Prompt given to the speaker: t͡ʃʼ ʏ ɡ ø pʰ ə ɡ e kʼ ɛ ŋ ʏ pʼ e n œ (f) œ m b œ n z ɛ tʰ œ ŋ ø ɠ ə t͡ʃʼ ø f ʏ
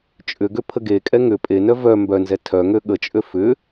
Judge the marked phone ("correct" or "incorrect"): incorrect